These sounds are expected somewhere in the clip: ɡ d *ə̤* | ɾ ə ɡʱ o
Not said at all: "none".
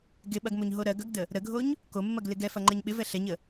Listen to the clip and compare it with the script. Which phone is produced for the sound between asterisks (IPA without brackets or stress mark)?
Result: ə